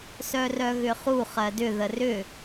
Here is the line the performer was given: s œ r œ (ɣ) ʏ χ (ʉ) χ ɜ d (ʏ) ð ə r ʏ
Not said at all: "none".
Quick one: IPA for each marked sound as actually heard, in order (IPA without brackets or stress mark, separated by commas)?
ɣ, u, ʏ